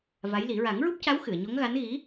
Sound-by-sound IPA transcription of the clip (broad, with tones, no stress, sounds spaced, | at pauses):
v a˧˥ j l i˨˩˦ ɹ a˨˩˦ ŋ ɹ u˦˥ p̚ c a˧˥ w x ɨ˨˩˨ ə̯ ɲ o˧˥ ŋ ɣ a˧˥ n ɣ i˧˥